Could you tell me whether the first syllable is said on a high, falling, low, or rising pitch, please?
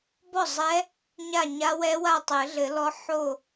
falling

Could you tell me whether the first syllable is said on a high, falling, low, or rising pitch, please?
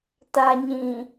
low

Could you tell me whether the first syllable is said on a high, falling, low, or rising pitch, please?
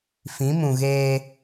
rising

